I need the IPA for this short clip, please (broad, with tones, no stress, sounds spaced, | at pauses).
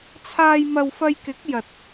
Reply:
t͡sʰ aː˧ j m ɐ˧ w f ɐ˧ j k ɪ˨˥ k̚ j ɐ˨ t̚